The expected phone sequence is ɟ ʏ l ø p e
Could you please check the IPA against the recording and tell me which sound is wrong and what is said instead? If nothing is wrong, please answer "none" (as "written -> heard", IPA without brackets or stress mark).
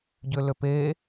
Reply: none